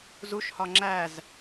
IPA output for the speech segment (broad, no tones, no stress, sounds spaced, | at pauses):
z u ʃ h ɒ ŋ͡ǁ æ z